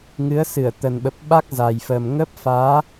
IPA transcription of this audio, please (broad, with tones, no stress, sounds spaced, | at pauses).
ŋ ɨ˨˦ ə̯ s ɨ˧˩ ə̯ t̪ ə˨˩ n ɓ ə˨˩ p̚ ɓ a˦˥ k̚ z a˨˩ j f ə˨˩ m ŋ ə˦˥ p̚ f aː˨˦